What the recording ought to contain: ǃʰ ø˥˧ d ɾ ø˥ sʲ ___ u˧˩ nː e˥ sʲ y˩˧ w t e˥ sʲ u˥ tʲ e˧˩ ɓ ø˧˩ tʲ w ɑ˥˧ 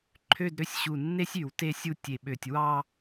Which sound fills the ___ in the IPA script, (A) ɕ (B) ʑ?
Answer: A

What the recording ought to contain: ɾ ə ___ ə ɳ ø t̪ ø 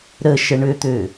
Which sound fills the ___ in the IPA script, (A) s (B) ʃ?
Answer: B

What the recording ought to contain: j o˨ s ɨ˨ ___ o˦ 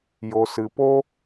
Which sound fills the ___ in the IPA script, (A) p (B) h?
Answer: A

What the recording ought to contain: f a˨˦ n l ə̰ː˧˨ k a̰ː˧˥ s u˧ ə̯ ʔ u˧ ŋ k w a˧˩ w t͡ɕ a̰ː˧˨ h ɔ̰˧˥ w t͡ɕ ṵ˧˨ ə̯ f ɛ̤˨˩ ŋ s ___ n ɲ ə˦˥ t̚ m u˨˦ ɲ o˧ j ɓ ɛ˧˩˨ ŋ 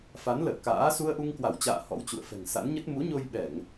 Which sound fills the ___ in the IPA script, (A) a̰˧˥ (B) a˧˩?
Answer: A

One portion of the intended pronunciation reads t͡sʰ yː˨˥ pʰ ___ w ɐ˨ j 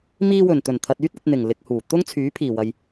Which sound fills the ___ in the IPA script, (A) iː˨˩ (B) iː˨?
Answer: A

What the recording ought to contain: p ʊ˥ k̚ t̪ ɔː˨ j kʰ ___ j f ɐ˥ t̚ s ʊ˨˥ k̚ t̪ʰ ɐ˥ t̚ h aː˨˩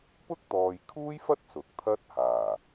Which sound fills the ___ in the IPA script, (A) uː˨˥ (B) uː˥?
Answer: B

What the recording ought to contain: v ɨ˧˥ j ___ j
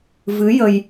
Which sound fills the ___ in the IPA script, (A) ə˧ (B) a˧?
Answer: A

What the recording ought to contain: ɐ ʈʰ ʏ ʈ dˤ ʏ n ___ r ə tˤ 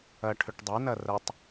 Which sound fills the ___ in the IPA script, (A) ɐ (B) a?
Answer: A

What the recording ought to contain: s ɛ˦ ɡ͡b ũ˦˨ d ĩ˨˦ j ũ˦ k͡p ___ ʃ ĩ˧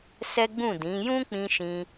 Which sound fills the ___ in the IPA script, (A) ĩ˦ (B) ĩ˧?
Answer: B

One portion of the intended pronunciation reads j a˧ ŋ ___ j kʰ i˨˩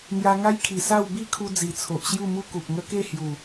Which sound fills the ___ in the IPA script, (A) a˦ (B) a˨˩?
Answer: A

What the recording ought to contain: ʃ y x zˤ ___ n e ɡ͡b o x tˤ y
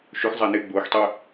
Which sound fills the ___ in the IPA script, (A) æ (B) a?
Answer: A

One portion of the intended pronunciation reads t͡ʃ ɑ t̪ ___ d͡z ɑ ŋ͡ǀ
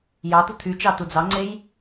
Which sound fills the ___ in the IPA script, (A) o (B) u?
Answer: B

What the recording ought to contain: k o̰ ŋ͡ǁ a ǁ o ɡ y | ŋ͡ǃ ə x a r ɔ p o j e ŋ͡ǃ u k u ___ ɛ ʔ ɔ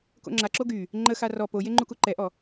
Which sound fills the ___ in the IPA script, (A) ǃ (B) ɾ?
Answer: A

